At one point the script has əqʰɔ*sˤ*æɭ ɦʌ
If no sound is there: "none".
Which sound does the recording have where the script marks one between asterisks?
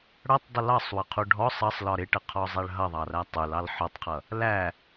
zˤ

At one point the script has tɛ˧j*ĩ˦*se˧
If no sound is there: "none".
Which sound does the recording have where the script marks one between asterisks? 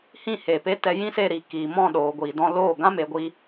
ĩ˦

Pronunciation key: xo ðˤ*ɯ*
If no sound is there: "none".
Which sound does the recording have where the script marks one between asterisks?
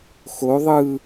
ɯ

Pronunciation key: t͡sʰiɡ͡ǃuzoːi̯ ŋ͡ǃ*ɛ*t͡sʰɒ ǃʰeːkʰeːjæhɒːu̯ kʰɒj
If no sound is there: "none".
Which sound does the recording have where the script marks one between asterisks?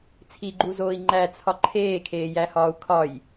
æ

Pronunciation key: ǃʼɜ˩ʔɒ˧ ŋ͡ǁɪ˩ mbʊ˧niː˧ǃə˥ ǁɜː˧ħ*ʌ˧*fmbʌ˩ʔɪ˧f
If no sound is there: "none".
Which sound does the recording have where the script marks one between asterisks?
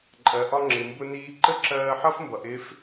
ʌ˥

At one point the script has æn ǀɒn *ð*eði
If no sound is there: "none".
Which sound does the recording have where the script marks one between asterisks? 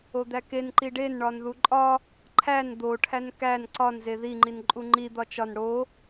z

